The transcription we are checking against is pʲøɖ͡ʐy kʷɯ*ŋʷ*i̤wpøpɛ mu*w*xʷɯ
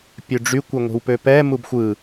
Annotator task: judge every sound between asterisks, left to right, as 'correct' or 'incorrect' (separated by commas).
correct, incorrect